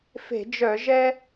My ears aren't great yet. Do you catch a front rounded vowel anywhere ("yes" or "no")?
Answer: yes